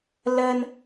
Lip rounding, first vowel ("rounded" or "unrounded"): unrounded